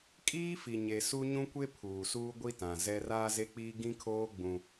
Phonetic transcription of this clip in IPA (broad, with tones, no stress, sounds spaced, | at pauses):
kʼ iː˦ f i˨ ɲ e˨ s u˦ ɲ ũ˦ kʷ e˦ pʰ uː˨ s uː˦ ɡʷ i˦ t ã˨ z ɛ˦ r aː˦ z e˦ k͡p iː˦ ɡ ĩ˦ kʰ oː˦ ɡ͡b ũ˦